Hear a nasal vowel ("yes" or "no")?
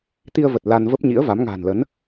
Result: no